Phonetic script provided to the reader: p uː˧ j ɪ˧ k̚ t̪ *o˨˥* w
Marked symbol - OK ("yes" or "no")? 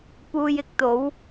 yes